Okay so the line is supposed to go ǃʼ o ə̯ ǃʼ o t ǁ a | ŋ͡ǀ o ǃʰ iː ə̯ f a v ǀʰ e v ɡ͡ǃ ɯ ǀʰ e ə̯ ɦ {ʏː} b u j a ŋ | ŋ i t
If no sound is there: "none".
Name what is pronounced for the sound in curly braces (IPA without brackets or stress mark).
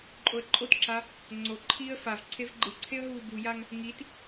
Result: uː